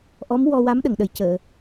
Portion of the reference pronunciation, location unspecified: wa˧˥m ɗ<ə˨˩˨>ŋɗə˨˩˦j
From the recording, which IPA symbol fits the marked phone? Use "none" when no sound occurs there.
ə˨˩˨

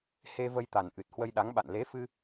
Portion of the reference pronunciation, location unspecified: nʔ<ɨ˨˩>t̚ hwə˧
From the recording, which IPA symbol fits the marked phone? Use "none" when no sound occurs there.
ɨ˨˩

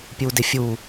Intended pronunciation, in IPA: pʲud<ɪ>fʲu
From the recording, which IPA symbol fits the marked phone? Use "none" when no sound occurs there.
ɪ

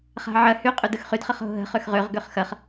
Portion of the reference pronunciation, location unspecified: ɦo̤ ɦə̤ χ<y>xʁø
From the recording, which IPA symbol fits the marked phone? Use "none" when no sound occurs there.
ø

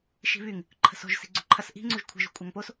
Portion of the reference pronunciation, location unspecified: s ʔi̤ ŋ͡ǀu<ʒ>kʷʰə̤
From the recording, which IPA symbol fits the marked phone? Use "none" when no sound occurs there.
ʒ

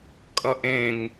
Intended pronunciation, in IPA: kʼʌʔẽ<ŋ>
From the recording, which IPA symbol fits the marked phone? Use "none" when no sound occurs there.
ŋ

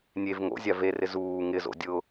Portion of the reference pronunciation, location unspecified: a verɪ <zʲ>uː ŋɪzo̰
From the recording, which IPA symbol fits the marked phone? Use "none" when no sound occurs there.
z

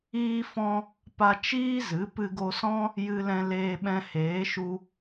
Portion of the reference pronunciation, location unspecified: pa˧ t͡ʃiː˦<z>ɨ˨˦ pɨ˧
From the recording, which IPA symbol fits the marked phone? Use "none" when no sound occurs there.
z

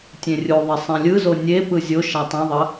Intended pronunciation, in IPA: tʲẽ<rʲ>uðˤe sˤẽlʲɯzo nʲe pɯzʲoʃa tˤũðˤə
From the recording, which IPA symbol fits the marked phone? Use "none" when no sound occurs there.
rʲ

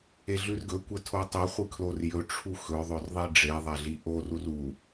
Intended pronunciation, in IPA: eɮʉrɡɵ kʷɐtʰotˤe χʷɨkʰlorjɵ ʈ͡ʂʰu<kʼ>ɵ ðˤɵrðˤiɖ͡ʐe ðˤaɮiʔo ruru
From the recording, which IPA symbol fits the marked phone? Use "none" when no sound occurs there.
x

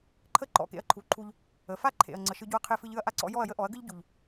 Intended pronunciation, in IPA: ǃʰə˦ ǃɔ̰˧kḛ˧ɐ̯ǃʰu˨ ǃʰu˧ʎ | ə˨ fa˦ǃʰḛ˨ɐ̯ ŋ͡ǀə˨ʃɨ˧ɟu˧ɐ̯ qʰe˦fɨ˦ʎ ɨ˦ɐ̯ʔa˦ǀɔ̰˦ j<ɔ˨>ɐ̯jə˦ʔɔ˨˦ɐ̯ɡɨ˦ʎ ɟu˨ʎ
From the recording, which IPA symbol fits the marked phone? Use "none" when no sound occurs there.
ɔ˦˨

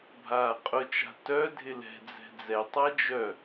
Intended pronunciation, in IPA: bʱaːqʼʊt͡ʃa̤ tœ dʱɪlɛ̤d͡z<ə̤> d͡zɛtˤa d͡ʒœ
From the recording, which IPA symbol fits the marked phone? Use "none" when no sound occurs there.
ɛ̤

